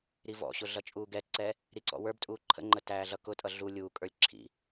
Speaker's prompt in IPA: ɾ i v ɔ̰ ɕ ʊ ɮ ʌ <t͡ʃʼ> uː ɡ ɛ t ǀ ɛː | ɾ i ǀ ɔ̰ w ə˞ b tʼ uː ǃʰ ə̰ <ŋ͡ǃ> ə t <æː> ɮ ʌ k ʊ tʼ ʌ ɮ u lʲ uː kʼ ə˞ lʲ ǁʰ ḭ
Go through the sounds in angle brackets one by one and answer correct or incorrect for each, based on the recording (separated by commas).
correct, correct, correct